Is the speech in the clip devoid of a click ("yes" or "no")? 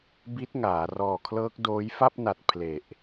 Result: yes